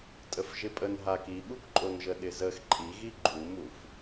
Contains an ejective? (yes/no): yes